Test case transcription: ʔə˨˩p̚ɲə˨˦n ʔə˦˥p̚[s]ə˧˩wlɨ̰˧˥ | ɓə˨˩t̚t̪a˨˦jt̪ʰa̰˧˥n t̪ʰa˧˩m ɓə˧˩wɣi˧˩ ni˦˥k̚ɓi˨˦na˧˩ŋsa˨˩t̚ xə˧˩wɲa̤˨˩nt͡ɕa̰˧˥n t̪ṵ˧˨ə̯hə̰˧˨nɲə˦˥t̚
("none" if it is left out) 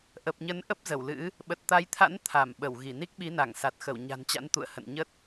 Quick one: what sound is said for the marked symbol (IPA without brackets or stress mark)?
z